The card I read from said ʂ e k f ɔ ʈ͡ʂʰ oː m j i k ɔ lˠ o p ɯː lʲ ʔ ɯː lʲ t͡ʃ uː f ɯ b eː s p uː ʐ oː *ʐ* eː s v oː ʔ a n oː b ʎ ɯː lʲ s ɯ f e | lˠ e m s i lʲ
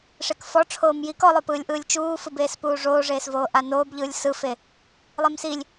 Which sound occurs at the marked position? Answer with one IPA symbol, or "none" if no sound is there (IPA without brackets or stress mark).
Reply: ʐ